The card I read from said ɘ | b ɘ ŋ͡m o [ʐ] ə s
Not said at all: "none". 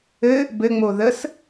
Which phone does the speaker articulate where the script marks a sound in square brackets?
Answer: ð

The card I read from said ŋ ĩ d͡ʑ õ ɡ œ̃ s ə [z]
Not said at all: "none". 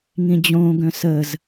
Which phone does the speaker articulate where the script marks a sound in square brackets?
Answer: z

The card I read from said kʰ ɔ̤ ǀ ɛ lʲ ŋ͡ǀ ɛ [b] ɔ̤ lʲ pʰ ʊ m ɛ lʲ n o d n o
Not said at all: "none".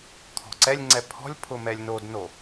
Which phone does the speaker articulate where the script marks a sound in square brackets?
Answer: pʰ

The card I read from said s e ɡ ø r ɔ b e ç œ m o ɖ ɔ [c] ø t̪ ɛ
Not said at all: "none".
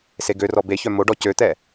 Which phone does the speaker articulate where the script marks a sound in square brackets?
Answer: c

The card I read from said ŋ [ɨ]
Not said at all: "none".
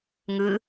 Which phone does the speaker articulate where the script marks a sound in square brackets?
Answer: ɨ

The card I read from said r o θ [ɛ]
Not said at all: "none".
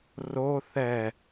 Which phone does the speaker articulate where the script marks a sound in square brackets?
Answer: ɛ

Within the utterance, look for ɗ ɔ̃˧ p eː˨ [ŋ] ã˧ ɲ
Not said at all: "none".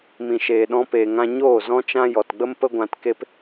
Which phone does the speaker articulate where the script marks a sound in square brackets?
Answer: ŋ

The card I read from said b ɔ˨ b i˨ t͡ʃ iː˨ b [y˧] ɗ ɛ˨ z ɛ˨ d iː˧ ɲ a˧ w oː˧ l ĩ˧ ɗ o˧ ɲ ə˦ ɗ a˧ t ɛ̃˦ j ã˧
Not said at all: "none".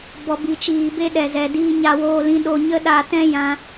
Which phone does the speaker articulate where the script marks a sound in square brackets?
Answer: e˧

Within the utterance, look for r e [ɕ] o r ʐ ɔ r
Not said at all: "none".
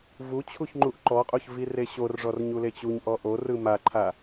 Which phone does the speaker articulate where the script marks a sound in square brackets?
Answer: ɕ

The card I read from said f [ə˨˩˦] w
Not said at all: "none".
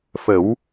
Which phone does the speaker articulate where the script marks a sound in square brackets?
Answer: ə˨˩˦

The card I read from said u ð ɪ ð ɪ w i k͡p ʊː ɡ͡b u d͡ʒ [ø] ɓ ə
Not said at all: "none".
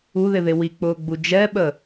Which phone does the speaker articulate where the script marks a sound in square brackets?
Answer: ɛ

